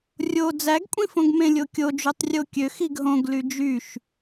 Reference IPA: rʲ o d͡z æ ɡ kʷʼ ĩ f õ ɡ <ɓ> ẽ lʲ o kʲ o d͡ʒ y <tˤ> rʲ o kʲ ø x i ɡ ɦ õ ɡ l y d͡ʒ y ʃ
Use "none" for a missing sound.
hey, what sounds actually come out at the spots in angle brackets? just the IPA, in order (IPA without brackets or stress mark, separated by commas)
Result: m, tˤ